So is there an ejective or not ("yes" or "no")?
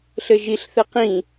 no